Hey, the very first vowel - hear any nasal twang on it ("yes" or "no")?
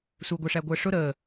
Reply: no